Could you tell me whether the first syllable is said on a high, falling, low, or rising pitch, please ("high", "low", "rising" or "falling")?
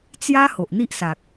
high